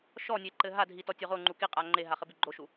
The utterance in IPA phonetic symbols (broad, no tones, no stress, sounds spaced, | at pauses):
ʃ ɔ nʲ e ǃ ɘ ɦ a dʱ i t ɔ tʲ o ʁ o ŋ͡ǃ u k i qʼ a ŋ͡ǃ e ɦ a χ ɘ b i ɡ͡ǃ o ʃ u